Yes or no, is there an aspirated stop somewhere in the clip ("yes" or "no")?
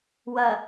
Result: no